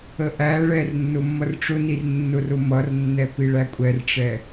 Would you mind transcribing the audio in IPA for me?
ə ʔ æ ɭ ɛ r nː ʊ mː ʌ r ʈ͡ʂ ʊ n i r nː ʊ r ʊ m ʌ r nː ɛ p i ɭ æ kʷʼ ɛ r ʈ͡ʂ ɛ

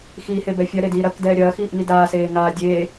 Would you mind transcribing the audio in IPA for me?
x iː h e b ɛ fʲ ɐ ɾ e d iː ɾ ɐ k d ɛː ɾʲ ɐː x iː ʔ ŋ i d aː s eː ŋ aː dʲ eː

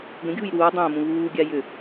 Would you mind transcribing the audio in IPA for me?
ɡ ə̃ ɡʲ uː j ɾ uː dˤ ə̃ː m ũ β uː ɡʲ a j ʏ

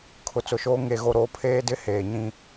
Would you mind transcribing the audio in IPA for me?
kʰ ʊ˨ t͡s ʊ˨ ʃ oː˦ ŋ e˨ ɣ o˨ ɾ o˦˨ pʰ eː˦ d ɪ˦ h eː˨ ɲ ĩ˦

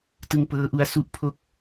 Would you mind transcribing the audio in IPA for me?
t ɯ˧ ŋ p ɤː˦˥ ʔ u˦˥ a̯ s u˦˥ ʔ pʰ o˥˩ k̚

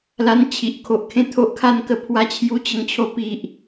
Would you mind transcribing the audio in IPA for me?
l a˧ n t͡ɕʰ i˨ ʔ kʰ o˨ ʔ kʰ ẽ˦ t̪ʰ o˦ ʔ kʰ a˥˧ n k ə˥˧ pʰ w a˧ t͡ɕʰ j u˧ t͡ɕ ə˧ ŋ t͡ɕʰ o˧ p i˨ ʔ

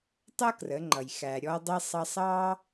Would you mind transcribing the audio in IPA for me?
tˤ ʌ˥ k r ə˩˧ ŋ͡ǃ ʌ˩ j x æ˩ ɾʲ ɔ˧ dˤ i˧ sˤ ɑ˧ sˤ ɑ˥

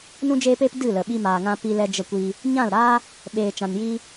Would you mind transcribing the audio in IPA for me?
n ũ˧ d͡ʒ eː˧ p eː˧ p d ɨ˦˨ l ə˨ ɓ i˧ m aː˨ ŋ ã˧ p i˧ l ɛ˧ d͡ʒ ə˧ kʷ i˧ | ɲ ã˦˨ l ɾ aː˦ | ɓ eː˨ t͡ʃ ã˨ n j i˧

